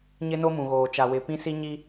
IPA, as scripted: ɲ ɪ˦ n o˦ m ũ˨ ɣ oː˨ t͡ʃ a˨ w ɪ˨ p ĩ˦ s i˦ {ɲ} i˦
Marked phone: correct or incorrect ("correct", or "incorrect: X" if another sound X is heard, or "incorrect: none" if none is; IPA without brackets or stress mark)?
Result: correct